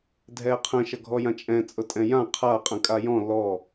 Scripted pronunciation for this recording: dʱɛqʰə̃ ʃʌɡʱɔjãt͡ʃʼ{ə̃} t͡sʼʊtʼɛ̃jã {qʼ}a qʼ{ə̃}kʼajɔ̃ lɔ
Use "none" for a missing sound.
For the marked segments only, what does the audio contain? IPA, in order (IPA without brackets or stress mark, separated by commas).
ɛ̃, qʰ, ə̃